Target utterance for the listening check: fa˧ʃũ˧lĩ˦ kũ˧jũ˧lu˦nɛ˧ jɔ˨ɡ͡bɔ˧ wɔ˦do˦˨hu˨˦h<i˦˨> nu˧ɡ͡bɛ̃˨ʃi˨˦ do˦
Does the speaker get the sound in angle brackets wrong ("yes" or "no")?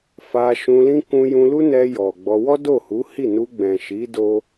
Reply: no